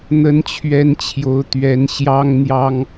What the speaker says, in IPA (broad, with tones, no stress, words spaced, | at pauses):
n̪ə˧˥nt͡ɕʰɥɛ˧˥n t͡ɕʰjo˧˥ʊ̯ t̪ɥɛ˧˥n ɕjɑ˥ŋn̪jɑ˥ŋ